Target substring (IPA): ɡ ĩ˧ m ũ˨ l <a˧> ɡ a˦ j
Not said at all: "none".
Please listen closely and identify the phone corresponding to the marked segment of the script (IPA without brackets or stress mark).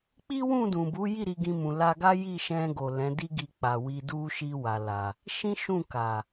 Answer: a˧